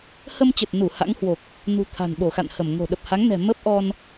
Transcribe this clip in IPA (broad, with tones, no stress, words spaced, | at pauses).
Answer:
hə˧mt͡ɕə˨˩t̚nu˧˩ ha̰˧˥ŋhwo˨˩k̚ | nṳ˨˩ t̪ʰa̤˨˩nɓo˧˩xa̰˧˨nhə˧˩m ŋo̤˨˩ɗə˨˩p̚ha˨˦ŋnɛ̤˨˩ mə˦˥p̚ʔɔ˧n